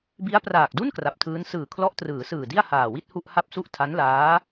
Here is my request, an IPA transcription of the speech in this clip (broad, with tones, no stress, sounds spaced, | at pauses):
b i˦˥ a̯ p r aː˨˩ k̚ d u˥˩ n k r a˨˩ p̚ tʰ ɯː˦˥ n s ɯː˨˩ kʰ l ɔ˦˥ ʔ t r ɯː˩˦ s ɯː˨˩ d i˥˩ a̯ h aː˨˩ w i˥˩ t̚ h u˥˩ ʔ h a˥˩ p̚ s u˥˩ ʔ tʰ a˦˥ n l aː˦˥